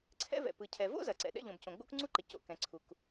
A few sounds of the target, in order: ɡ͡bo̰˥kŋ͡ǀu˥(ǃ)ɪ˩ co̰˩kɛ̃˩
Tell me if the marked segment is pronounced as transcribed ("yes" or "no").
yes